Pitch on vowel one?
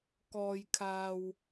low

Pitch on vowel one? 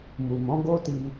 low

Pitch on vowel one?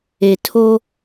low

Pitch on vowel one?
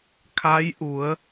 rising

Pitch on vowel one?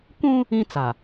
high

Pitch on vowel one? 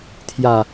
low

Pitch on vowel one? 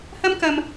high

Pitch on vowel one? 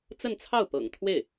falling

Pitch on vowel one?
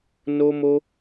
high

